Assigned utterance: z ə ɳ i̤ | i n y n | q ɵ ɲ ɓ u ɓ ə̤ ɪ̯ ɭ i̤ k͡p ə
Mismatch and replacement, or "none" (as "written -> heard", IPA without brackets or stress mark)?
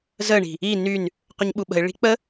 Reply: none